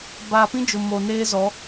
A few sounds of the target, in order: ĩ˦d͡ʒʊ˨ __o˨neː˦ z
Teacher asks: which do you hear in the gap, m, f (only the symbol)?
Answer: m